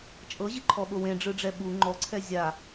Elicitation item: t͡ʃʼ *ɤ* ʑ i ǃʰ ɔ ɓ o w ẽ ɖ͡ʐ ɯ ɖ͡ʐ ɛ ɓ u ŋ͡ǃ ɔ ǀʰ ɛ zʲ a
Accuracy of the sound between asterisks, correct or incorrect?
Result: correct